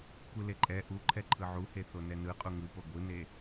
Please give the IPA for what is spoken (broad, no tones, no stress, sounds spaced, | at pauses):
kʷ ɯ l e ǃʼ ɛ ʔ u ǃʰ ɛ ǃʰ ɯ ʕ u h e θ o n ɛ n ɯ qʼ u ŋ ɯ p o ɡʷ ɯ n e